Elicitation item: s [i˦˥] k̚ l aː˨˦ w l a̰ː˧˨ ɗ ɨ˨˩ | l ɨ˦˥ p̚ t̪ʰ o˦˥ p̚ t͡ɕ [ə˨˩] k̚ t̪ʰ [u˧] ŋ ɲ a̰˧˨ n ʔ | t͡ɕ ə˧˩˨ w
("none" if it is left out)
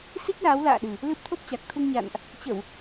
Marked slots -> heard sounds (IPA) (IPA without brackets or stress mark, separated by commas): i˦˥, a˨˩, u˧